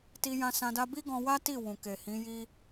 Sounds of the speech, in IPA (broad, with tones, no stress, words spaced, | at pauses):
ti˧jã˧sã˧ da˧bi˦ɡɔ̃˧wa˦ ti˦˨ wũ˨ke˨hĩ˨˦ ji˦